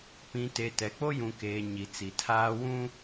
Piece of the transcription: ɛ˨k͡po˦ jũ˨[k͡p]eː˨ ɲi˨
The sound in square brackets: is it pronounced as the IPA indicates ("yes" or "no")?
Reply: no